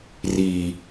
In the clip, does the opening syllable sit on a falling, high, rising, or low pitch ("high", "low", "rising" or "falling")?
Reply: low